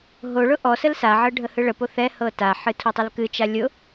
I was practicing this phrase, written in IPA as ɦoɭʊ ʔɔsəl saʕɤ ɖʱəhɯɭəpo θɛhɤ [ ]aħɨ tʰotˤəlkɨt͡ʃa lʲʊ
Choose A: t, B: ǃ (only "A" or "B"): A